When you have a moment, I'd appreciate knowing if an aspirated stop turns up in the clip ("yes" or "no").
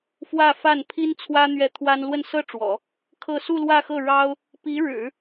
yes